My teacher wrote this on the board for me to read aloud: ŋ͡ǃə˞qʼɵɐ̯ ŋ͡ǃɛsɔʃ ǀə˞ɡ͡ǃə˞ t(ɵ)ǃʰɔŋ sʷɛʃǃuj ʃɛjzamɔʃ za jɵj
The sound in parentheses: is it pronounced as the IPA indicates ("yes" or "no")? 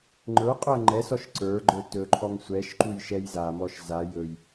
yes